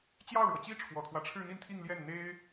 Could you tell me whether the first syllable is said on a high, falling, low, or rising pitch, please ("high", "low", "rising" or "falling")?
falling